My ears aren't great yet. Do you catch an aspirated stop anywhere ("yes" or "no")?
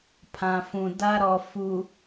yes